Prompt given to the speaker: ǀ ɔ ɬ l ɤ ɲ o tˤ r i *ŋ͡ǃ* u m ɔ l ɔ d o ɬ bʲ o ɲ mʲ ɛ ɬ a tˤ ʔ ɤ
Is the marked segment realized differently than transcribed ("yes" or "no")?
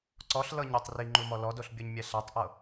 no